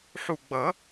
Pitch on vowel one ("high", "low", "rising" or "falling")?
low